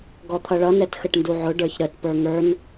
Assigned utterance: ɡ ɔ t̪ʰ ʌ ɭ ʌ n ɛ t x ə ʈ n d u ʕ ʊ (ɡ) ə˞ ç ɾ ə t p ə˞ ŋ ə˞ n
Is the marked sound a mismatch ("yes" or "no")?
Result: yes